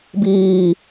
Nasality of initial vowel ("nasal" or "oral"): oral